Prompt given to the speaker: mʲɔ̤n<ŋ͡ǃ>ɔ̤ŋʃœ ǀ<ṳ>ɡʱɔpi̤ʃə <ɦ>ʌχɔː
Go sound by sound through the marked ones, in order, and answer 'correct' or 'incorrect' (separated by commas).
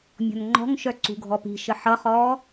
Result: correct, correct, incorrect